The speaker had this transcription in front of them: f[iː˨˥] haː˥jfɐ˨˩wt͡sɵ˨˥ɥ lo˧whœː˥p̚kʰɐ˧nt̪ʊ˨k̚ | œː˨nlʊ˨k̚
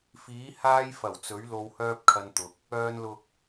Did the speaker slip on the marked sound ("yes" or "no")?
no